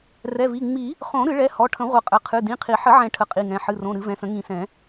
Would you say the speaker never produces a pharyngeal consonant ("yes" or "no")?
no